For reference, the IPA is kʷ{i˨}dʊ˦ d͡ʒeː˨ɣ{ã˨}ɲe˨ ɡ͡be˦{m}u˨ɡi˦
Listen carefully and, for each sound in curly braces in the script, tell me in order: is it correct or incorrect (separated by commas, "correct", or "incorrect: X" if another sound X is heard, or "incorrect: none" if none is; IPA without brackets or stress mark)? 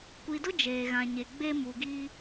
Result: correct, correct, correct